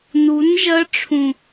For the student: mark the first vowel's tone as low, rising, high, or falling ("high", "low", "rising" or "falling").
rising